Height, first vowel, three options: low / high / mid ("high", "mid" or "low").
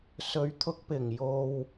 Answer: mid